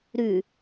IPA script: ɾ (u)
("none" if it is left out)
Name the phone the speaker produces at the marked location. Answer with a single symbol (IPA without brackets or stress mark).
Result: ʉ